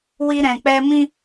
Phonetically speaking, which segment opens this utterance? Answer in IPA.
w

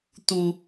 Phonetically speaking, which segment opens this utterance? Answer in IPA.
t̪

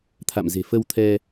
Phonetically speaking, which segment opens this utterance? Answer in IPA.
t̪ʰ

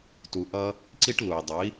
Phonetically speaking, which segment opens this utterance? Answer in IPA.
t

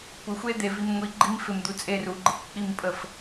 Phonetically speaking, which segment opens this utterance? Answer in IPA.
kʷ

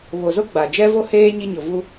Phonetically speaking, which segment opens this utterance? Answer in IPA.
β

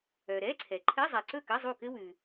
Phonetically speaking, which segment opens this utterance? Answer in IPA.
œ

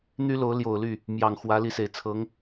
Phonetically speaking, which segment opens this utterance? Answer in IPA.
n̪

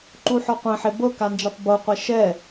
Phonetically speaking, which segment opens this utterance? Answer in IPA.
ǃ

